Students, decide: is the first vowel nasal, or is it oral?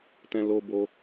nasal